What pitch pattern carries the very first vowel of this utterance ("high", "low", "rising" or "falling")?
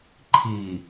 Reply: low